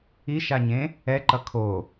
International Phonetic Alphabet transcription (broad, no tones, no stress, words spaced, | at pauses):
iʃaɲẽ | ɛǃʌ kʰo